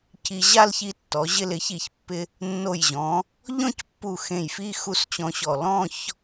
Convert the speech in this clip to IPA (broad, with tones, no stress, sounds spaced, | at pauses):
c i˧ ʑ a˥˧ l ç i˧ tː ɔ˩˧ ʑ ɪ˧ l ɪ˩˧ ç i˧˩ ç pː ɪ˧ | nː o˧˩ j ʑ ɔ̃˩˧ | ʎ ɔ̃˥˧ c pː u˧˩ x ẽ˧˩ j f i˥˧ x u˥˧ s t͡ɕ ɔ̃˧ ɕ ɔ˧˩ l ɔ̃˥˧ ç